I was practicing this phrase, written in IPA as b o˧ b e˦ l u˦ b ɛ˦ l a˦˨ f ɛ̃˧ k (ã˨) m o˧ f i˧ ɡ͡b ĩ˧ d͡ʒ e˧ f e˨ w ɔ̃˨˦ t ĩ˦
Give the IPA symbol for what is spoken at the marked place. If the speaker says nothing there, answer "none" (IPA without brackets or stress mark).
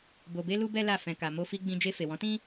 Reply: a˨